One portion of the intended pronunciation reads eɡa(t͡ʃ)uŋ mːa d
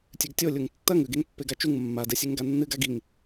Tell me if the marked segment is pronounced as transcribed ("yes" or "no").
yes